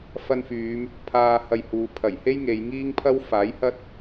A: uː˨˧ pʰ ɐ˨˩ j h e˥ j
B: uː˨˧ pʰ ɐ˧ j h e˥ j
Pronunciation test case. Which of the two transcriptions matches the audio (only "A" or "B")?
A